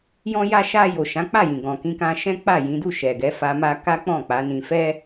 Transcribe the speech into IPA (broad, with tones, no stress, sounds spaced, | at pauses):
j ɔ̃˧ j a˧ ʃ a˧ j o˨ ʃ ã˨˦ k͡p a˦˨ j ĩ˨ ɡ ɔ̃˨ k ĩ˧ k ã˧ ʃ ɛ̃˦ k͡p a˦˨ j ĩ˨˦ d u˦˨ ʃ ɛ˨ ɡ ɛ˨˦ f a˧ m a˦ k a˦ k͡p ɔ̃˦˨ k͡p a˨˦ n ĩ˧ f ɛ˦